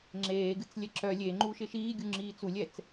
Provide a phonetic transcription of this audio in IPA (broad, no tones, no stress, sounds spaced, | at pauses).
ŋ͡ǁ eː ɡ ɨ t͡s lʲ ɛ ǁ œ lʲ e ŋ͡ǃ u ʃ ɪ ʃ iː ɡʲ u ŋ͡ǁ iː t͡s u lʲ ɛ t͡s